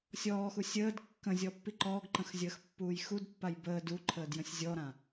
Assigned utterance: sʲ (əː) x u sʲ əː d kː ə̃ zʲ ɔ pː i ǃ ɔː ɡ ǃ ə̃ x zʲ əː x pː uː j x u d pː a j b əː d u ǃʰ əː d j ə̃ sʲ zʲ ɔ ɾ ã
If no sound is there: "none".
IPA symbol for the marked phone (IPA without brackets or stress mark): ɔː